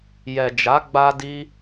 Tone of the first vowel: low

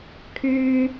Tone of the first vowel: high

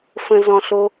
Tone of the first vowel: low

